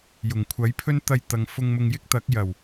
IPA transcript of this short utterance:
j ʊ˨˩ ŋ kʷʰ ɐ˨˥ j pʰ ɵ˥ n t̪ ɐ˧ j t̪ ɐ˨ ŋ f ʊ˧ ŋ m ʊ˧ ŋ j ɪ˥ k̚ t̪ ɐ˨˥ k̚ j ɐ˨˩ w

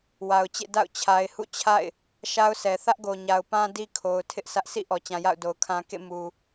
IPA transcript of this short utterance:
w a˨ ʊ̯ t͡ɕ ḛ˦˨ d a̰˦˨ ʊ̯ t͡ɕʰ a˨ ɪ̯ h ṵ˦˨ t͡ɕʰ a̰˦˨ ɪ̯ | ʃ a˦ ʊ̯ sʰ ɛ˨ θ ä˦ ʔ ɡ o˨ ɲ a˨ ʊ̯ p ã˦ d i˦ kʰ o˨ ʊ̯ tʰ ɪ˦ ʔ s ä˦ ʔ sʰ ḭ˦˨ ʔ ɔ˨ t͡ɕ ã˨ j a̰˦˨ ʊ̯ d o˨ ʊ̯ kʰ ã˦ k ḛ˦˨ m u˨

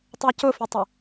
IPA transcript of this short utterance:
tˤ ɜ c ʊ f i tˤ ɪ

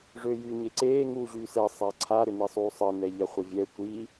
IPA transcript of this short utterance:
ʐ ø j y ɲ e ǀ eː ŋ uː ʑ yː s ɛ sˤ a ǀʰ a ɾ ʏ n i sˤ uː sˤ ə n ɛ ʎ a χʷ ə vʲ ɛ tʷ i

